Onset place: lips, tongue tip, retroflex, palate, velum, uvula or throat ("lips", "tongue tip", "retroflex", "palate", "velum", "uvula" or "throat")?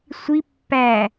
tongue tip